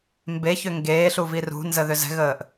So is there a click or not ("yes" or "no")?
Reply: no